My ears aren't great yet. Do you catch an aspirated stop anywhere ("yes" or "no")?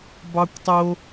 no